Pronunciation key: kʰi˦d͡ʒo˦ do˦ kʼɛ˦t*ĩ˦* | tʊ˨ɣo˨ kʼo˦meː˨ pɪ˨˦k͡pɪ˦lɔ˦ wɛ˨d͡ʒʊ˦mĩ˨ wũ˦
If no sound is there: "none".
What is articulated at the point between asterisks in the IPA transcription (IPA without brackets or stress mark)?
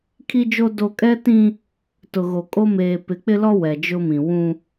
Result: ĩ˦